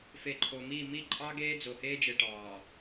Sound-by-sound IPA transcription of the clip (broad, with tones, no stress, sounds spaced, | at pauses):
f e˨ ǃʰ o˨ m i˦˨ m i˦˨ ǃʼ ɑ˦ ɡ eː˦ d͡z o˨ h eː˦ d͡ʒ e˨ ʈ ɑː˨